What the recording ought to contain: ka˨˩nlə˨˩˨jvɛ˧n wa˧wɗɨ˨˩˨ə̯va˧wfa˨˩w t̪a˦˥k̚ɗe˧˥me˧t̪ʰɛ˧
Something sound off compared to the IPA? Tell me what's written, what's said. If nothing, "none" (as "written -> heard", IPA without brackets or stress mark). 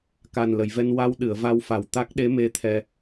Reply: none